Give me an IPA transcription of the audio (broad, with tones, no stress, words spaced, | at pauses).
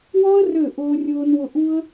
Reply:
wɔ˥ə̯rø˦˨ ʔʊː˥rʲʊː˥nwʊ˥ ʔu˥ə̯